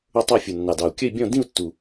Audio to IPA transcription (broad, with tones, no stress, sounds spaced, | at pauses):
ʊ˥˧ tˤ ə˞˥˧ fʲ u˨˩ nː ɑ˨˩ d ɑ˨˩ u̯ kʲ ə˥˧ i̯ bʲ ɔ̃˥˧ d ĩ˥˧ u̯ tː u˨˩